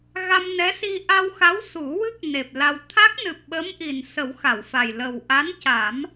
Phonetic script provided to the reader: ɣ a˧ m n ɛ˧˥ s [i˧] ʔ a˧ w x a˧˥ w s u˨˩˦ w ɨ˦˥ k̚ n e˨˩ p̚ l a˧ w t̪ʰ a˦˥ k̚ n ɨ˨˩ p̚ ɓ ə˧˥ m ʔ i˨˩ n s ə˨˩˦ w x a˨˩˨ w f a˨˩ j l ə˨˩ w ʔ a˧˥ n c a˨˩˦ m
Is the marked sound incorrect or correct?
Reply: correct